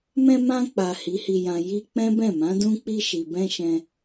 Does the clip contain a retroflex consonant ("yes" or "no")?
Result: no